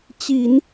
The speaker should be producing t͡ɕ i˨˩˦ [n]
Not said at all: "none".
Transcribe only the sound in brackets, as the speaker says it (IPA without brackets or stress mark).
n